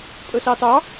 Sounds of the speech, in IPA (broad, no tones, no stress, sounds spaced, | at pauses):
pʼ ɵ s ɑ t ɑ